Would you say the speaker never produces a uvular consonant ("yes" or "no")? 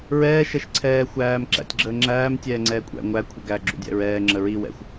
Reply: yes